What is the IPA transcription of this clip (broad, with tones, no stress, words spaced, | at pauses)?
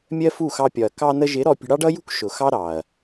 mʲɜ˦fu˦˨xɑ˧pʲɒ˨ɐ̯ kɑ˧nə˧ʒɪ˨˦ ɾɔ˧ pʲə̤˧ɽɑ˦ɖʌ˦jṳ˦k ʃʊ˨xɑ˦ ɾɑ˨ɐ̯